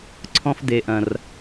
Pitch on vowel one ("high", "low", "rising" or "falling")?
high